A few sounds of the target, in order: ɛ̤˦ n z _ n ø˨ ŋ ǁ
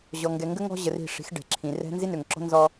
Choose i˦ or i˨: i˦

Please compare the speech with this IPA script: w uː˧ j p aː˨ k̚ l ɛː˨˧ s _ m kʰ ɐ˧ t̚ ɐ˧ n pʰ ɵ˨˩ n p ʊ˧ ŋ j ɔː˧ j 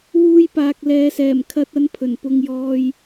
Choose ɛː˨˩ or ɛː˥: ɛː˨˩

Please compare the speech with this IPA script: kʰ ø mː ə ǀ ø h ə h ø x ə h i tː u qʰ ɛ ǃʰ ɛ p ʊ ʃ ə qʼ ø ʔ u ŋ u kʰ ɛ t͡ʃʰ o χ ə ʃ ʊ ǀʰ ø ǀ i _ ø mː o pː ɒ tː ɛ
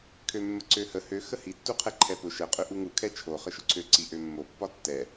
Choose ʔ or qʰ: ʔ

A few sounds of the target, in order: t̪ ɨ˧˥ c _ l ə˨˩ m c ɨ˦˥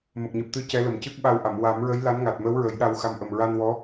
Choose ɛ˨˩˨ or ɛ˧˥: ɛ˧˥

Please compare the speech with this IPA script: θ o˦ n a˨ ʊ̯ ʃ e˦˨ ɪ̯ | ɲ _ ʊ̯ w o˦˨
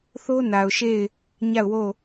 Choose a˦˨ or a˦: a˦˨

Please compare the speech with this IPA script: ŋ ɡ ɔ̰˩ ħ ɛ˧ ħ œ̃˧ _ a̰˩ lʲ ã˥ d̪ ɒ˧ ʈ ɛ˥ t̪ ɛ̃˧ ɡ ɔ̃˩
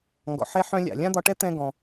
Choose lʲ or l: lʲ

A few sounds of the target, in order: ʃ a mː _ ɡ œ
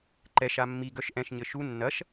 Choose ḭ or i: i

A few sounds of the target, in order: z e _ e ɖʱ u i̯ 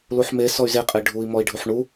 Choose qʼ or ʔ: qʼ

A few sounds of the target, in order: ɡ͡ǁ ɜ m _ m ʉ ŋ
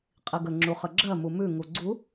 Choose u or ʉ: u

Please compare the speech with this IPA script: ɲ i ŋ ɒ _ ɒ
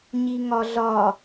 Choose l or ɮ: ɮ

